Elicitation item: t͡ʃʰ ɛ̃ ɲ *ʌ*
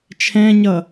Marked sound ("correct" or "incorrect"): correct